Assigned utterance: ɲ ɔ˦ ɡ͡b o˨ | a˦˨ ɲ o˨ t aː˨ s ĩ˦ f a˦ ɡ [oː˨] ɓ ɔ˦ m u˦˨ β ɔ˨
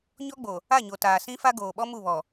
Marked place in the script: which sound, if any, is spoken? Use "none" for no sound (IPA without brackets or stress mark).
oː˨